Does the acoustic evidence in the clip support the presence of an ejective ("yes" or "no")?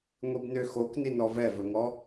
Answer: no